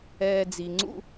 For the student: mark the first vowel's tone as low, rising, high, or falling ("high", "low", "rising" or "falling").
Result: low